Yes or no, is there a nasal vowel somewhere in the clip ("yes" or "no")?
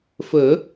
no